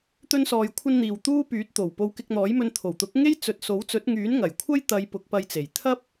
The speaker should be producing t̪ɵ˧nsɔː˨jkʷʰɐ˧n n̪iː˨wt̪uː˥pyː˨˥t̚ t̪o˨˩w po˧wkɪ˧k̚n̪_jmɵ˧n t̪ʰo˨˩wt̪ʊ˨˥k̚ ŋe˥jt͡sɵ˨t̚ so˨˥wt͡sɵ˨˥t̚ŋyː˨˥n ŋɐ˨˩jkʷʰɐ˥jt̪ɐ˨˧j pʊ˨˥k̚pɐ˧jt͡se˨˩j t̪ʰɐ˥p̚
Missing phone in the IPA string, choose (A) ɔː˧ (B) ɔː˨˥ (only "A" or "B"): B